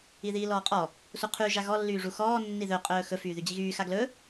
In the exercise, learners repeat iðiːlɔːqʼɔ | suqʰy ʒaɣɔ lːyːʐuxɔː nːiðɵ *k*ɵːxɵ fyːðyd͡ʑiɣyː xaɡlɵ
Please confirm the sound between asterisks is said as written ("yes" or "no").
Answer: no